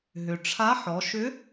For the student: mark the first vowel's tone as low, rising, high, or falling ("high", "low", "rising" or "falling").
low